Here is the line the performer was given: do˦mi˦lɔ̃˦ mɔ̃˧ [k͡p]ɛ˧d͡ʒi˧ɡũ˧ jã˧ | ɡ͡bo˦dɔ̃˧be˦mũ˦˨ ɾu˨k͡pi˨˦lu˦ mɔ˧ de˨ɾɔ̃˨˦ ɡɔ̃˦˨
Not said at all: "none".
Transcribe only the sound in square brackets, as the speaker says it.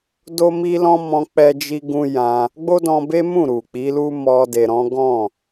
k͡p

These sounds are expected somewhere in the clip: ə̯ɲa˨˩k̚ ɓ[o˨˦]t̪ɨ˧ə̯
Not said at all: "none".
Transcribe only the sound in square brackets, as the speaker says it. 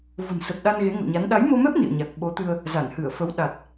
o˨˦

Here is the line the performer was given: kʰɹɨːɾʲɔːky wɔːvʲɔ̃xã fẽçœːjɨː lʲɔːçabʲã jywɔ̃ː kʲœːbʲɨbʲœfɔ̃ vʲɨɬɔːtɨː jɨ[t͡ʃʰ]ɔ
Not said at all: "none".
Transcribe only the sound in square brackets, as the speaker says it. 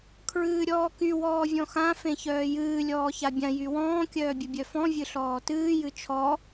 t͡ʃʰ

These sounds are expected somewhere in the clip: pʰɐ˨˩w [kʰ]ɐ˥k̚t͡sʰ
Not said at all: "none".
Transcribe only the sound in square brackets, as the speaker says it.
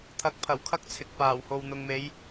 kʰ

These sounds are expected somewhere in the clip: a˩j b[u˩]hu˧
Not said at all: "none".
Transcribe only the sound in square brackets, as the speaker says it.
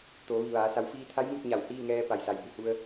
u˩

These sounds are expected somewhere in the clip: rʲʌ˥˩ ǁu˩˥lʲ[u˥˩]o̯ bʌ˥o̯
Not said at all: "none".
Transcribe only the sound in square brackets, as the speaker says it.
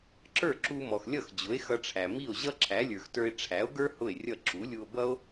u˧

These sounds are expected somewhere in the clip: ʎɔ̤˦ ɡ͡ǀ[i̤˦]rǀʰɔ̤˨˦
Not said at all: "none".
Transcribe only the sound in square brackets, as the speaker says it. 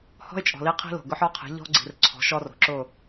i̤˨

